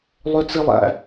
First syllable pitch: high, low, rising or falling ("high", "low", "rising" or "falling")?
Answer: high